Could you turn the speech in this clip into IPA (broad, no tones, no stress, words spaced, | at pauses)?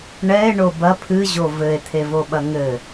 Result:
ɳɛe̯ɳo bɐ pʰɨʑo vɘe̯t̪ʰevoɓɐ ŋɘ